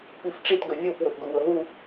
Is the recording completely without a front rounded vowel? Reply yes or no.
yes